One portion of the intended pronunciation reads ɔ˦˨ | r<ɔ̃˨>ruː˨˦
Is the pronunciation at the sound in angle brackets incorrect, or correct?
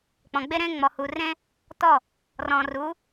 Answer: incorrect